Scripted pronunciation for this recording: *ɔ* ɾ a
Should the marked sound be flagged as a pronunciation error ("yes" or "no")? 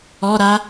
no